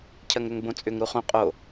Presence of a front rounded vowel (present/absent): present